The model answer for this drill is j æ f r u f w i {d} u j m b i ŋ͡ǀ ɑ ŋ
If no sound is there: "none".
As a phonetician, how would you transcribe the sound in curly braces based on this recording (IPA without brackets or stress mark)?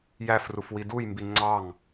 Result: d